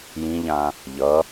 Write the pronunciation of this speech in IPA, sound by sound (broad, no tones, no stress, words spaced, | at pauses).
jĩʎã | ʎʌ